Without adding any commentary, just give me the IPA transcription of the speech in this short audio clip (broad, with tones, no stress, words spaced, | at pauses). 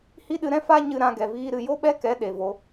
hi˦ɗɨ˧ɾɛ̃˦ fa˦ ɲɨ˧ ɾã˧ ɡɛ˨viː˦ɾɨ˧ jo˦ɓɛ˦kɛ˨˦ ɗe˨vo˧